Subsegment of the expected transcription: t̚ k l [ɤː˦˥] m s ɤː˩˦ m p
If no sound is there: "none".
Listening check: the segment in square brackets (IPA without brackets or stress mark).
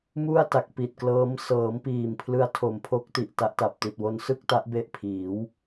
ɤː˦˥